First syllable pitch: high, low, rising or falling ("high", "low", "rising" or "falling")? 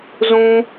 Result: high